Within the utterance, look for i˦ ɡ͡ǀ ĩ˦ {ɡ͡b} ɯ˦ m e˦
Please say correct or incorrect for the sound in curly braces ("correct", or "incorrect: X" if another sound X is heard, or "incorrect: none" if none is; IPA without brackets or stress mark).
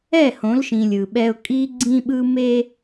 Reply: incorrect: ɓ